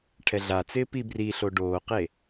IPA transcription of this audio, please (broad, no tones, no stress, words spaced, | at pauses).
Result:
ʈʰɛɮat͡sɪː pibriɬo ɖoːqe